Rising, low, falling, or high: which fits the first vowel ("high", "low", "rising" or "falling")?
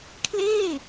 falling